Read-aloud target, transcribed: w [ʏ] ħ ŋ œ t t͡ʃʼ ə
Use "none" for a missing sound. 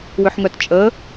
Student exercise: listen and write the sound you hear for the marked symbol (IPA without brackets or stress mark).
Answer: ʏ